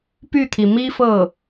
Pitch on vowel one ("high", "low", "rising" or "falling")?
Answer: falling